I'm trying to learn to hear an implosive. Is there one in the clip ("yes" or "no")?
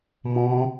no